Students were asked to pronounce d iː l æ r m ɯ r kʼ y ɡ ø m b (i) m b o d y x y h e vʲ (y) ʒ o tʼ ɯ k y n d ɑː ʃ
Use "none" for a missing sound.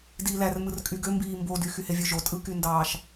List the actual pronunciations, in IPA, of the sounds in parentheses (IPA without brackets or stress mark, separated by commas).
iː, ø